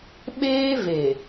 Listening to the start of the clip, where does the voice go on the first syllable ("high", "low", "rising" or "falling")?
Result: high